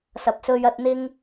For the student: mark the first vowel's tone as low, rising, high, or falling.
rising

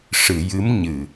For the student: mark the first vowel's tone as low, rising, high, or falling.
low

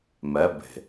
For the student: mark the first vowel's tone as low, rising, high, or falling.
rising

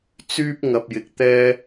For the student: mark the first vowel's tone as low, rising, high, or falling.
high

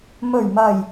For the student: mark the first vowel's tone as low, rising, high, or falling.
low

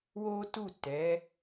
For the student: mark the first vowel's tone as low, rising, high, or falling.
high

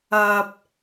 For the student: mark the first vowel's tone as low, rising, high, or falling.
low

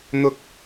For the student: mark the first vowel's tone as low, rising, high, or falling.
low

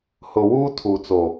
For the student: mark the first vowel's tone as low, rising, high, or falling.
low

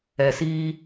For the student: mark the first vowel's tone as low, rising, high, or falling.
low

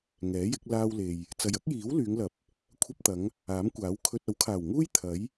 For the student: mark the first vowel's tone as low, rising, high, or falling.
rising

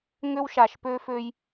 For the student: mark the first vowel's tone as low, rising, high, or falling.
high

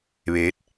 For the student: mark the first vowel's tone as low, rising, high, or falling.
rising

